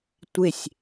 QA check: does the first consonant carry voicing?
no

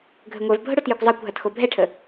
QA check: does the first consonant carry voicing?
yes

